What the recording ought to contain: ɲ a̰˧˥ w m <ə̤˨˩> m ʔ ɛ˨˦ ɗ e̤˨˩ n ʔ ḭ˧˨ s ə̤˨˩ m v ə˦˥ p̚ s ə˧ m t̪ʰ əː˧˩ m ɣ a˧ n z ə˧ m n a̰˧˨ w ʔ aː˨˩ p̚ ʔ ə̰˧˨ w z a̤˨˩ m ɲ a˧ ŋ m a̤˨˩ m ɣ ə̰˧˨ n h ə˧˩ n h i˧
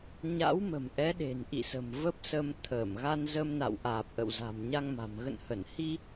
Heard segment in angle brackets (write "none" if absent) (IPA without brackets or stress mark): ə̤˨˩